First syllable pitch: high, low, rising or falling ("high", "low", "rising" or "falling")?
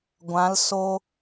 rising